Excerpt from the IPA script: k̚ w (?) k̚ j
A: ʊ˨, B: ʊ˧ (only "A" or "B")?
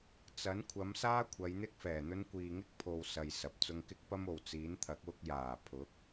B